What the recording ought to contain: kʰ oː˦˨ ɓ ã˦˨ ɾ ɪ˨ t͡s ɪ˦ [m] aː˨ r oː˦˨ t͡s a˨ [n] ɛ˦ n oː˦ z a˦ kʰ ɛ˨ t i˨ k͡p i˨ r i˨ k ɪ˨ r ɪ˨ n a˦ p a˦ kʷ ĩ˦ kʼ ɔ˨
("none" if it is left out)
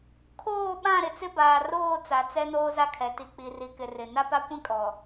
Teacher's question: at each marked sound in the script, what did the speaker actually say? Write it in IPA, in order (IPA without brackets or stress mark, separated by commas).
b, t͡s